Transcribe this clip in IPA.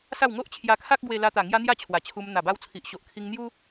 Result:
s a˥˧ w ŋ o˦ ʔ t͡ɕʰ j a˧ kʰ a˦ k̚ ɡ w e˧ l a˧ t̪ a˨˩ ŋ j a˧ n̪ j a˥˧ t͡ɕʰ w a˨˩ t͡ɕʰ u˧ m n̪ a˨˩ b a˧ w t͡sʰ i˨ ʔ ɕ o˨ ʔ kʰ i˧ ŋ n̪ j u˦

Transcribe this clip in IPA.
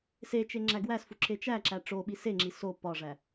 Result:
s e t͡ʃ e ŋ͡ǁ æ ɡ w æ s f u ǁ e t͡ʃ æ ǁ æ ʈ͡ʂ o ɓ i s e ŋ͡ǁ i s o p ɒ ʐ æ

